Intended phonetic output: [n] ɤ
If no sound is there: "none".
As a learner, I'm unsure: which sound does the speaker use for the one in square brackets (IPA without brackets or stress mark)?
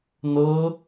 n